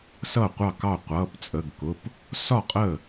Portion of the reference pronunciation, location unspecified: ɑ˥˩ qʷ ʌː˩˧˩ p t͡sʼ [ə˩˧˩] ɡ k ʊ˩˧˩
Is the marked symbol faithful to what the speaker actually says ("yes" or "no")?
yes